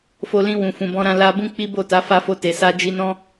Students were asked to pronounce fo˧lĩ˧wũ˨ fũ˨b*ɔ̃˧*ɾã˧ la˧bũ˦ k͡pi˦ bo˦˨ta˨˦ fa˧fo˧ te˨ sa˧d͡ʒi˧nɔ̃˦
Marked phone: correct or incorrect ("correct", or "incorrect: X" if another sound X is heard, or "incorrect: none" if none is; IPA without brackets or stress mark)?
correct